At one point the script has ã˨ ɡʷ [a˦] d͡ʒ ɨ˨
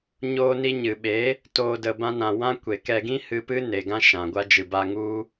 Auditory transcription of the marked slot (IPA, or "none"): a˦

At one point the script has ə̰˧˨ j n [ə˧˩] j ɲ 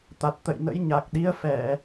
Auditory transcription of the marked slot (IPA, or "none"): ə̰˧˥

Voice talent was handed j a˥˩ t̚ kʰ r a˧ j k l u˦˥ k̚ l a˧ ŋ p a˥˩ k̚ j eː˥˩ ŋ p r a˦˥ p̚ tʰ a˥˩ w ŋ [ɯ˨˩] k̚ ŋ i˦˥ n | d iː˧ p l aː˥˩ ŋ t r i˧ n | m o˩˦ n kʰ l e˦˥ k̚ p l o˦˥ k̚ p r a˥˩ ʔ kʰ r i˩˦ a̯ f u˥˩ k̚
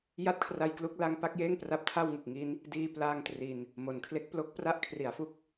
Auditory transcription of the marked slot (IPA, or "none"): ɯ˨˩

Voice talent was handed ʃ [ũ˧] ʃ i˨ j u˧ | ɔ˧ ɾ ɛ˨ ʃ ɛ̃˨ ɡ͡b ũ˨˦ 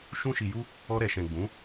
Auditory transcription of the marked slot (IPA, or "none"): ũ˧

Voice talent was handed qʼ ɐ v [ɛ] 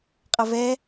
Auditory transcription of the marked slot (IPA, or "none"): ɛ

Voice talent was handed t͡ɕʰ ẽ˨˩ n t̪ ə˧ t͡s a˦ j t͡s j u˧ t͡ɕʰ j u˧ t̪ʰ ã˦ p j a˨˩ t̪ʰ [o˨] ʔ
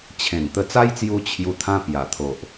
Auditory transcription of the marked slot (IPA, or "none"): o˨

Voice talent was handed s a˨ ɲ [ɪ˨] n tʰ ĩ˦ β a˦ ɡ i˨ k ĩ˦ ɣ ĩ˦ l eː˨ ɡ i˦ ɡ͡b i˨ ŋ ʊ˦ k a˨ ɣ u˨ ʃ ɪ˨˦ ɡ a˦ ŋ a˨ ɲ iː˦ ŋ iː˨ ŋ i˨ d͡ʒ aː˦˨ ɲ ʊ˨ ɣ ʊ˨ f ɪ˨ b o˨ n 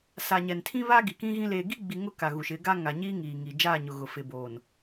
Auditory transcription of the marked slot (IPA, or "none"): ɛ˨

